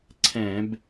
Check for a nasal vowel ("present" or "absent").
present